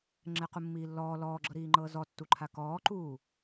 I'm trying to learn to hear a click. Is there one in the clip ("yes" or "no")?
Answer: yes